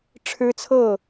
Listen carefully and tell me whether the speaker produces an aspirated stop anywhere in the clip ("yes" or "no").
yes